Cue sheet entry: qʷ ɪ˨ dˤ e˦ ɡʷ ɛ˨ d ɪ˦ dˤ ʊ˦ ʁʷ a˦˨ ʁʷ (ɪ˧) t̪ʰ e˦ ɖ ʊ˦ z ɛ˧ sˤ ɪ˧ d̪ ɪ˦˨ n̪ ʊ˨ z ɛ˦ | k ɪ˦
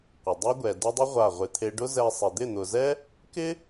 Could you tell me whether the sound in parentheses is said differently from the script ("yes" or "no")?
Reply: no